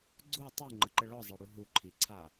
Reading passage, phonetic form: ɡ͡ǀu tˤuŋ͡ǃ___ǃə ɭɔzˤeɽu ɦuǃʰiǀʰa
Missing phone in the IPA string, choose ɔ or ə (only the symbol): ə